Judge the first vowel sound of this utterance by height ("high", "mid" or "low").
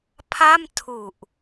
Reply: low